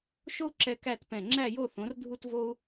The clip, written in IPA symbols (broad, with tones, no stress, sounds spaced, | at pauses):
ʃ o˥ u̯ ǁ ɛ˧ k æ˥˧ t p ɛ̃˧˩ ŋ͡ǁ æ˥˧ j o˥˧ θ õ˩˧ r dʱ u˧ t v o˥ u̯